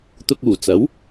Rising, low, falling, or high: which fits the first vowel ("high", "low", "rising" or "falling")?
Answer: low